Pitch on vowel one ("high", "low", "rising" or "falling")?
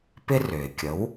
high